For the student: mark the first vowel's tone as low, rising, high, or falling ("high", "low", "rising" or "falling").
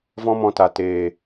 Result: high